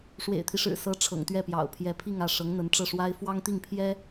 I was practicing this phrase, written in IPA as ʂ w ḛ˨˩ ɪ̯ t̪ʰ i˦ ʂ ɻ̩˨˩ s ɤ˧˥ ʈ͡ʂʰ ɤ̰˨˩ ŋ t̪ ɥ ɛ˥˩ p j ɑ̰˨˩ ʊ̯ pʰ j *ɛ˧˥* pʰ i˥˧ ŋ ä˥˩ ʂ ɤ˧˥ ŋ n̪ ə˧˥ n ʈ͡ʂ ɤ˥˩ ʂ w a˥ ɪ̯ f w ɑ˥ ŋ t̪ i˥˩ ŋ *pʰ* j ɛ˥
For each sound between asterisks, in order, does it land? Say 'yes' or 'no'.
yes, yes

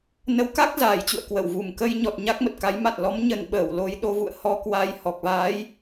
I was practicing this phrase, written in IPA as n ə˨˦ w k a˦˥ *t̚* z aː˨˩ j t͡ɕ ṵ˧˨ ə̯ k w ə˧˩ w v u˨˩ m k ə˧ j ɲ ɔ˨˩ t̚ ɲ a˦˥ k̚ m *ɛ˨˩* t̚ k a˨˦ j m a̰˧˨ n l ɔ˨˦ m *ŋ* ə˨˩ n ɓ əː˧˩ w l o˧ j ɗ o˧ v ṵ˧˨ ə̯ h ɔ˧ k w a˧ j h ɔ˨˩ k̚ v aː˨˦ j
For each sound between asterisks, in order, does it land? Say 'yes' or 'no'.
no, no, no

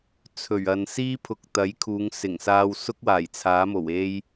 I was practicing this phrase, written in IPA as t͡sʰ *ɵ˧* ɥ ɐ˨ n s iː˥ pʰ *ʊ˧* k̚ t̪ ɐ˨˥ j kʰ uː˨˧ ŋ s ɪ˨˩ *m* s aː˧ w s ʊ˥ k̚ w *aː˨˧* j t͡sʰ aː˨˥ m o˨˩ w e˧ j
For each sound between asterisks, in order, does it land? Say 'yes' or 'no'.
no, no, no, no

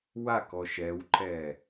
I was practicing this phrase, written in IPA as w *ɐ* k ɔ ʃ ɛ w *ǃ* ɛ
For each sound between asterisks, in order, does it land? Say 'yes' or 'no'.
no, yes

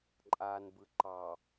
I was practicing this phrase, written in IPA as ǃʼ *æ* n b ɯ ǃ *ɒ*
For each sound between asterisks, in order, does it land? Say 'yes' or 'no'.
no, no

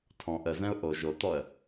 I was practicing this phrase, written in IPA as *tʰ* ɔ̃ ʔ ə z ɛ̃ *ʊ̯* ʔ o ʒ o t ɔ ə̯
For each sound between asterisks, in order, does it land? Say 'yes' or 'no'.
yes, yes

